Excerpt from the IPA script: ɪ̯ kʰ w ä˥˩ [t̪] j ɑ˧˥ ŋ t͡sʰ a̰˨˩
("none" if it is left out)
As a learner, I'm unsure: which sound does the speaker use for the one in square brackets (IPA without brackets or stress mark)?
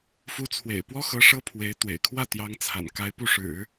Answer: t̪